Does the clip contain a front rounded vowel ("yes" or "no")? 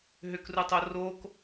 yes